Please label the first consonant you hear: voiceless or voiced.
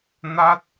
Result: voiced